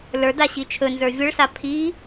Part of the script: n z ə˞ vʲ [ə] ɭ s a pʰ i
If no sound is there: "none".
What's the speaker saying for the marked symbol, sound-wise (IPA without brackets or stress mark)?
ə